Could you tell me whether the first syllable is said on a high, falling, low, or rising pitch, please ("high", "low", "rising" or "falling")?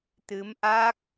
rising